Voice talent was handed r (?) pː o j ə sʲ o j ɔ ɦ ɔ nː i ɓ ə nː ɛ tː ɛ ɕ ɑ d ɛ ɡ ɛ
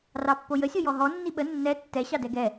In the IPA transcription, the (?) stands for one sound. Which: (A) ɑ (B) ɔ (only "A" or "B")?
A